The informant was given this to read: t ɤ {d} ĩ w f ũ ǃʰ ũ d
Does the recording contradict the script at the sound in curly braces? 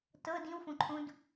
no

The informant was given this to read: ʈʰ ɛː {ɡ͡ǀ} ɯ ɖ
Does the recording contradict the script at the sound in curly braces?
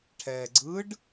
no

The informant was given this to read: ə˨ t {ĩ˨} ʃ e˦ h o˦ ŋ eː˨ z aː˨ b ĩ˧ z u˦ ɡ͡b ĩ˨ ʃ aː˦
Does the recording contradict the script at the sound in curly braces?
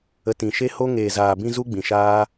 no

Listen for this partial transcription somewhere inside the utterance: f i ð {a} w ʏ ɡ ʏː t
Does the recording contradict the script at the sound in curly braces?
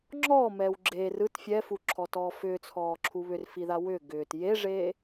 no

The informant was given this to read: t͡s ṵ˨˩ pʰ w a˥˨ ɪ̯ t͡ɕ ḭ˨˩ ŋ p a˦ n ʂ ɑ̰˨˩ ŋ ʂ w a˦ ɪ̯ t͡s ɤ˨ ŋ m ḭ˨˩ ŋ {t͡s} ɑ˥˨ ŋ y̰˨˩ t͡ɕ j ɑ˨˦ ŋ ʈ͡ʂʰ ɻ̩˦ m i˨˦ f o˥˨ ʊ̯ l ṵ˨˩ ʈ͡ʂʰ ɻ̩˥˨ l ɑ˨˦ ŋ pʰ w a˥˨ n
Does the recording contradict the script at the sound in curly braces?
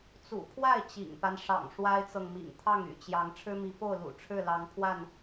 yes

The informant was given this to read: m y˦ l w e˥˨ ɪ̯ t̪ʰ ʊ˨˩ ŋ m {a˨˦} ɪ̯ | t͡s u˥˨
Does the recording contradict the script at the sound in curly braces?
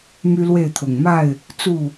yes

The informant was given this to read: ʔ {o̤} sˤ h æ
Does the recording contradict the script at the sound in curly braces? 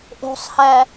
no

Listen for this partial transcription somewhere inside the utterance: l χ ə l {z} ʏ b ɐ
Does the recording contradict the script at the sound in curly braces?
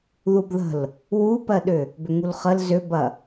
no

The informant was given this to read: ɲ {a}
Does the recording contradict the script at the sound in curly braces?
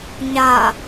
no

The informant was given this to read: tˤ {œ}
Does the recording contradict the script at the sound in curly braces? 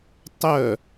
no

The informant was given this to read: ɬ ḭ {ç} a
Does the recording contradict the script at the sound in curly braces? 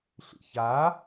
no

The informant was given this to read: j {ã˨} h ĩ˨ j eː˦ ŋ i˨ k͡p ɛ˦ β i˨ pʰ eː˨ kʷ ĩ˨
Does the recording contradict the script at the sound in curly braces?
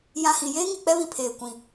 no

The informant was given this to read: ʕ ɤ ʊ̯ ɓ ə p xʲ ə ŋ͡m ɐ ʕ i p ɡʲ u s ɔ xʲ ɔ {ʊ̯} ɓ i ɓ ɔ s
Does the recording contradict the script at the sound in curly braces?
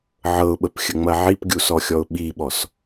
no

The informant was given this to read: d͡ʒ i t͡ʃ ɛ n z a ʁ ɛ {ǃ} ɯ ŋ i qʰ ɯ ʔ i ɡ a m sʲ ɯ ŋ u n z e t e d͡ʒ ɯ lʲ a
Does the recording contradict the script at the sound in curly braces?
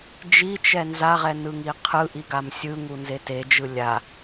yes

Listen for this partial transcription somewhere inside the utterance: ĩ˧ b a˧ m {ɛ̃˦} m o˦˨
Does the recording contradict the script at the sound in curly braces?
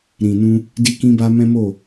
no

